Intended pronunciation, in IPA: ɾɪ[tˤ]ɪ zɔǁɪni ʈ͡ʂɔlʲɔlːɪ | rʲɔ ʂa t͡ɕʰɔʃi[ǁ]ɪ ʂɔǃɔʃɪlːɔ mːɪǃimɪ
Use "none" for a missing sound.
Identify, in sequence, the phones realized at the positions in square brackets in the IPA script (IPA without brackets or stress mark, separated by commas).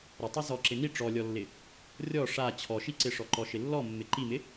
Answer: tˤ, ǀ